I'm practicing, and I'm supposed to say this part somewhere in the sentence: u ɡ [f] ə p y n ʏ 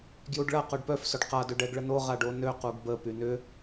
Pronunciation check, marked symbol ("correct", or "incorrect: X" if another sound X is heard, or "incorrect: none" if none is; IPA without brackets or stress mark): incorrect: b